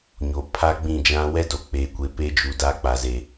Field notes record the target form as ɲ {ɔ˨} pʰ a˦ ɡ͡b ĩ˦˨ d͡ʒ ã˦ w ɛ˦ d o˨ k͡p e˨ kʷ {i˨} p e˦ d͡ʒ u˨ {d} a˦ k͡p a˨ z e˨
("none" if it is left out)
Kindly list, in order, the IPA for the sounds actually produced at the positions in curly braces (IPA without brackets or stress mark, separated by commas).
o˨, e˨, d